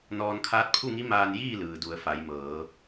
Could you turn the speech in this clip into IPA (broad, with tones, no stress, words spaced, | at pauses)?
nɔː˧nkʰaː˧˥t̚pʰu˥˨ŋi˧˥ maː˧njiː˥˨lɯː˩ du˩˧ə̯ fa˩˧jmɤː˩˧